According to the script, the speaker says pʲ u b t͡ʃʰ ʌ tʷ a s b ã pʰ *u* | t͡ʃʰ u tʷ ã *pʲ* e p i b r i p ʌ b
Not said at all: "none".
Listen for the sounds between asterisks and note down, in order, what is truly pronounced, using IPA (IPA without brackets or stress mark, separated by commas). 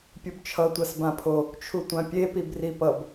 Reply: o, pʲ